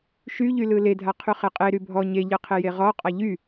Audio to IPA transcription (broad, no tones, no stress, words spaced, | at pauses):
ʃyʎylɯ ledʱa qʰyχeqʼe ɾybʱɔ ɲeʎɯqʰe jeʁɔ qʼaʎy